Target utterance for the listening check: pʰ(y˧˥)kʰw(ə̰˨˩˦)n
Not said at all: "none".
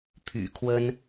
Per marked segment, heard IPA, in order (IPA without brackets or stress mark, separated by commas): y̰˨˩, ə˥